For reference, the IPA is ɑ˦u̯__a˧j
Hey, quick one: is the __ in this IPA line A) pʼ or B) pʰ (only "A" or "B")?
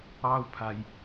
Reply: B